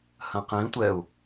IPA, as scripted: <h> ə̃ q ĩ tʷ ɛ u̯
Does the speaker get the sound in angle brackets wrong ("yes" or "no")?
no